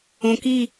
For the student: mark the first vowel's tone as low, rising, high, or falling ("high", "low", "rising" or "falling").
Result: low